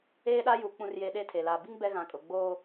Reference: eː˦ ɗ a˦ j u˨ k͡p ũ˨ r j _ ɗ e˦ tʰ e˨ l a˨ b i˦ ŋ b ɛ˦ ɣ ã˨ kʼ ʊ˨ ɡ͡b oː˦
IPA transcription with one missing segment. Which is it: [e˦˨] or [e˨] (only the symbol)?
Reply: e˨